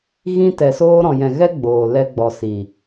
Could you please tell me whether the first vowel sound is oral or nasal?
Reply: nasal